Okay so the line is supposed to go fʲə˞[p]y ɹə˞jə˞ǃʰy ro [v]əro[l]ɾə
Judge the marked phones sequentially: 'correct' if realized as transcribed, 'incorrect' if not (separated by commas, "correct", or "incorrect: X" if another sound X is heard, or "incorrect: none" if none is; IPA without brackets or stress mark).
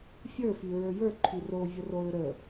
incorrect: f, incorrect: vʲ, incorrect: ɹ